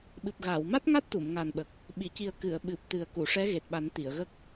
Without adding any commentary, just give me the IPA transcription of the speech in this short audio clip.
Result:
ɓ ɨ˨˩ p̚ ɣ aː˨˩˨ w m a˦˥ t̚ ŋ a˦˥ t̚ t̪ u˨˩˨ m ŋ a˨˩ n ɓ ə˨˩ k̚ | ɓ i˨˩˨ c i˨˩ ə̯ k ɨ˨˩˨ ə̯ ɓ ɨ˨˩ p̚ t̪ ɨ˨˩ ə̯ k u˨˩˨ ʂ ɛ˧˥ ɣ e˨˩ t̚ ɓ a˨˩˦ n t̪ i˨˩˨ ə̯ ɣ ə˦˥ k̚

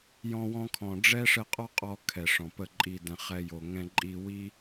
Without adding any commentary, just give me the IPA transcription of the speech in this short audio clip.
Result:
j ɔ̃˧ w ɔ̃˧ kʰ ɔ̃˨ ɖ͡ʐ ɛ˦ ʂ ə˧ qʼ ɔ˦ qʼ ɔ˧ kʰ ɛ˨ ʂ ɔ̃˨ p ə˦˨ ǃʼ i˧ d ɛ̃˨ χ ɛ˧ j o˨ ŋ ɛ̃˧ ǃʼ i˧ w i˦

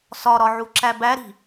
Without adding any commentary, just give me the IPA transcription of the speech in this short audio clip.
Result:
s ɒ ɾ ɒ ʕ u ǁ æ b æ ɾ i̤

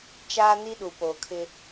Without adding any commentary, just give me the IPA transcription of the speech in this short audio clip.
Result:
t͡ʃ aː˦ n i˦ ɗ u˨ p oː˨ kʰ ɪ˦

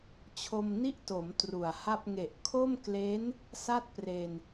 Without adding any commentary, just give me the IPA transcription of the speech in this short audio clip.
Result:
t͡ɕʰ o˧ m n i˥˩ ʔ t o˩˦ m t r u˨˩ a̯ h a˥˩ p̚ ŋ e˨˩ ʔ kʰ o˥˩ m k l e˦˥ n | s a˥˩ t̚ p r e˧ n

